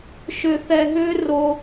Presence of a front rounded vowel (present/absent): present